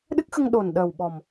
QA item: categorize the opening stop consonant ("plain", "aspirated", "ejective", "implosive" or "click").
implosive